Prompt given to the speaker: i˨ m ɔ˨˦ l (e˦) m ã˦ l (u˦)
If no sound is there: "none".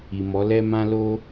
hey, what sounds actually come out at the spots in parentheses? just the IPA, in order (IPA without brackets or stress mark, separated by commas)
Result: ɛ˦, o˦